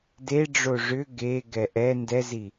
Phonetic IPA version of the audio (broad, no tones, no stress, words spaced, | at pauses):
deɖ͡ʐo ʐʏ ɡeɡɛ ʔɛ ndɛzi